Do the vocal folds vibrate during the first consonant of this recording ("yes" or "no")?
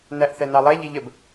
yes